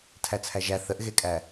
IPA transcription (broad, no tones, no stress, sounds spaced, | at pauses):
tʰ æ t͡sʰ æ ʒ æ θ ə ʔ ɣ e kʼ æ